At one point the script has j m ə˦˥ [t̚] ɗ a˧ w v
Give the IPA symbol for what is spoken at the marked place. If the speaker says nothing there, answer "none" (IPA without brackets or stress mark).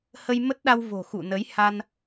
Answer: t̚